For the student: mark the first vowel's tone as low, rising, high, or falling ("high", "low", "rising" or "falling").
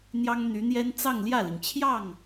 high